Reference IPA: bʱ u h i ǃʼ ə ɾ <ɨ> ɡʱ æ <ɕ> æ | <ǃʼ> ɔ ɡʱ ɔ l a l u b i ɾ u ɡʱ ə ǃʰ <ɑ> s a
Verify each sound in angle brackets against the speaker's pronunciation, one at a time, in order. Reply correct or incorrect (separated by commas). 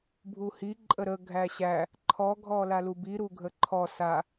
incorrect, correct, incorrect, incorrect